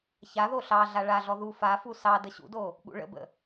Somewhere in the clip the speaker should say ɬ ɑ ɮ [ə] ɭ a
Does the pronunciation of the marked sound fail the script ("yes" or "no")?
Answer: yes